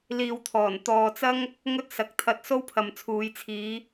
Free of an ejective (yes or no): yes